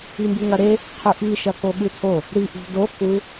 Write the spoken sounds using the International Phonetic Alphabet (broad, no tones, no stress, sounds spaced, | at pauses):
i m b ɨ ŋ ɐ ɾ e | qʰ ʉ ʔ i ʃ ɐ k o ɠ ɨ tʰ o | ɾ i ʔ ṳ d o k u